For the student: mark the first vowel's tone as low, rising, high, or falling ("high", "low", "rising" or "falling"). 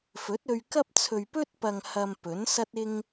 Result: rising